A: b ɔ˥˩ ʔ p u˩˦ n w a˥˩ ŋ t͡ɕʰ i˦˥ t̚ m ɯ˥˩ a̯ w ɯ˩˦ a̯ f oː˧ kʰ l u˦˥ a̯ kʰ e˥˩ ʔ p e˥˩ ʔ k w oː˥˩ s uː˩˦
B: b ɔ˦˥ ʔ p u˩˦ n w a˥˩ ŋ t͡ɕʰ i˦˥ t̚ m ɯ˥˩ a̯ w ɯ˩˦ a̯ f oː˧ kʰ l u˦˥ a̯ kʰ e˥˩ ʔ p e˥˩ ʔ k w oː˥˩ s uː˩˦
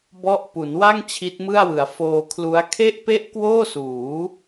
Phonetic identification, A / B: A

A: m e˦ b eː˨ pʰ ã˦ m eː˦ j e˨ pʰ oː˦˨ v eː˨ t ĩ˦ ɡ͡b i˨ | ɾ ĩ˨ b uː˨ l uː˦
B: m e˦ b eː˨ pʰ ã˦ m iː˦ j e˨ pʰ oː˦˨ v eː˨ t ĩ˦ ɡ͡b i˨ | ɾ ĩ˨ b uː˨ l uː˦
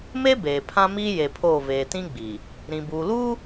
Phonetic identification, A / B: B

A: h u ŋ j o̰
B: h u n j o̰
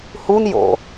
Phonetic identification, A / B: B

